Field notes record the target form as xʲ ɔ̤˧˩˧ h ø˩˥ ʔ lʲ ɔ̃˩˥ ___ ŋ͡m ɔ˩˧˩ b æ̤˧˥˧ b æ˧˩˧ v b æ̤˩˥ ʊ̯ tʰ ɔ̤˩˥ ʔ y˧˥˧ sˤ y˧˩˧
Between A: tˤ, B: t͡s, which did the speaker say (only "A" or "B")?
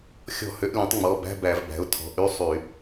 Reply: A